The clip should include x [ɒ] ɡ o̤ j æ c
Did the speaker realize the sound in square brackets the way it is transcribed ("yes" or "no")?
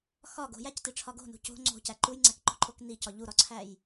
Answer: yes